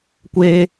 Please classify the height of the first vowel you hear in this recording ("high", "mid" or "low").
mid